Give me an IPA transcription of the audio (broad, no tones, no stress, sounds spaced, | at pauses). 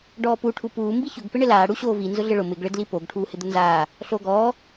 ɖ ɔː p u ʈʰ u p uː m b i ç ʊ ɡ p ɪ ɳ ɪ l aː ɽ u ɕ oː v i n z ʊ ɮ ɪ ɭ ʊ m ɪ ɡ ɭ ɪ d l i p o ɡ ʈʰ uː h ɪ d̪ ʊ n z aː | ɬ oː ɡ ɔː